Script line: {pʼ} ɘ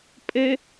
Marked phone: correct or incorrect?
correct